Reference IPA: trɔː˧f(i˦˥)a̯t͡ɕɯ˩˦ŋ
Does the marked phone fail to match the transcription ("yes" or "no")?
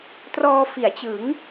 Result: yes